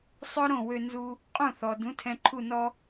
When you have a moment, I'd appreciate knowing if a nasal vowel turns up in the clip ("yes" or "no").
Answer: yes